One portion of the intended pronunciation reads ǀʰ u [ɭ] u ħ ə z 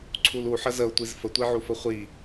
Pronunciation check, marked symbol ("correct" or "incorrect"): incorrect